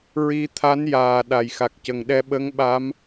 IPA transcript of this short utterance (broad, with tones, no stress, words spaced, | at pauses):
ɹi˧t̪ʰa˧˥njaː˨˩ ɗa˨˩jxa˨˩k̚cə˨˩ŋ ɗɛ˧ɓə˧˥ŋɓa˧˥m